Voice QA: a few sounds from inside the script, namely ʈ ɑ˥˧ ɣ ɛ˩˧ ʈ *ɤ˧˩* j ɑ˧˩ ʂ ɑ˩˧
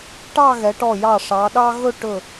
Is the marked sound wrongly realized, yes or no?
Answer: yes